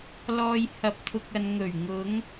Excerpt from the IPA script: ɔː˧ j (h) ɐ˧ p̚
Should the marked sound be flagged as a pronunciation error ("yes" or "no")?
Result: no